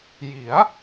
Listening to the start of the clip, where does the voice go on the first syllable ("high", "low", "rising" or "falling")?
rising